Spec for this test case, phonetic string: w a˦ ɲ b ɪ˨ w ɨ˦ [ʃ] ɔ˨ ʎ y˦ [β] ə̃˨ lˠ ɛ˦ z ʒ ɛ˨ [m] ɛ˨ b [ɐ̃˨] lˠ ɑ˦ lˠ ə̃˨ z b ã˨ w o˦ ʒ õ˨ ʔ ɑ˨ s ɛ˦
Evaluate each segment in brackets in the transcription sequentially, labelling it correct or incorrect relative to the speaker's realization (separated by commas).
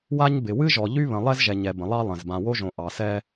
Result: incorrect, correct, incorrect, incorrect